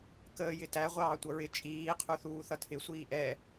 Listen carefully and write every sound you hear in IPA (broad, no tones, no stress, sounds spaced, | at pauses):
k əː j ɪ t æ ʁʷ ɑː tʷ ʌ ɹ ɪ t͡ʃʼ iː qʰ u θ uː θ ʌ tʰ ɪ sʷ iː ʔ ɛ